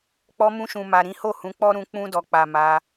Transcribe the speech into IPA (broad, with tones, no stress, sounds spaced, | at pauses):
k͡p ɔ˧ m ũ˧ ʃ ũ˨ m a˨ ɾ ĩ˨˦ h o˦˨ h ũ˨˦ k͡p ɔ˦ ɾ ũ˧ k͡p ũ˧ d ɔ˨ k͡p a˨ m a˧